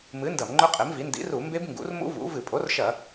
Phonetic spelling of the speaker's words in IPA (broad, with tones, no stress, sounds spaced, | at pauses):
m ɨ˩˥ n d ɐ˧˩˧ m ŋ͡ǃ ɵ˦˥ qʼ e˩˥ m v i˩˥ n d ḭ˩˥ r u˧˩˧ m b e˦˥ b ŋ ɡ ṵ˩˥ r m ṵ˦˥ v ṵ˩˥ v ɨ˧˩˧ pʼ o˩˥ r ʃ ɐ˧˩˧